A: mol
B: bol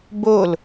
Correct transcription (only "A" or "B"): B